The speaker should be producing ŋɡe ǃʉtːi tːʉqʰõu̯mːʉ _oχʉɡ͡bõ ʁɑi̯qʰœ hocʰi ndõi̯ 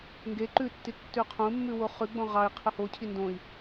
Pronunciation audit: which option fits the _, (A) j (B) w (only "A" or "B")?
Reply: B